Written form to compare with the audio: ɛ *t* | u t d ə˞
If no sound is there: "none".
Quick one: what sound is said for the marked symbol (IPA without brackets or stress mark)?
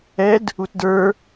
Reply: d